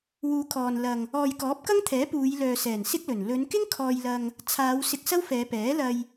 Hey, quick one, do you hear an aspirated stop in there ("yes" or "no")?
yes